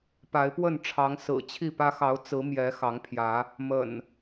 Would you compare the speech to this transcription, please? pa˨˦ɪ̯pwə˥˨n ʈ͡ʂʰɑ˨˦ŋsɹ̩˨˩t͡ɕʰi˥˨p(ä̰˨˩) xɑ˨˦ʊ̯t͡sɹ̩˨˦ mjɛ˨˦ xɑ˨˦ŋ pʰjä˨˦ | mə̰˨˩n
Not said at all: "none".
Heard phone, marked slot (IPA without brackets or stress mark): ä˦